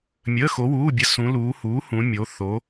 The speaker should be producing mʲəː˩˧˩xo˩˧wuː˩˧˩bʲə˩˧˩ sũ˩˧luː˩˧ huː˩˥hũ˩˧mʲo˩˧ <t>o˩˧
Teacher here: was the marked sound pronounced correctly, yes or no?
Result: no